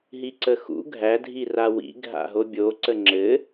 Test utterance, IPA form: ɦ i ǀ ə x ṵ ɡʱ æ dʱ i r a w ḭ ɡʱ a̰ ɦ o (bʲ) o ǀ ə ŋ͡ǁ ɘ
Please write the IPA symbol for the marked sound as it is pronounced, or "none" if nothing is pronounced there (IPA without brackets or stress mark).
bʲ